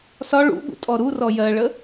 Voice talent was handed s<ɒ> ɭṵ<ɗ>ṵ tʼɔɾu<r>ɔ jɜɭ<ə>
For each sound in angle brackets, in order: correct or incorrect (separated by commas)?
correct, incorrect, correct, correct